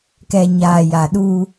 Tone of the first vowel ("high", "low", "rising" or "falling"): low